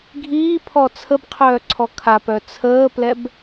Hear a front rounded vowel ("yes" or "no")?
yes